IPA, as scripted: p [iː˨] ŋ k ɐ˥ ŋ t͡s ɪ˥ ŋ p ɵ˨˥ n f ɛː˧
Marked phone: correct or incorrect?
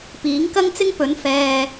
incorrect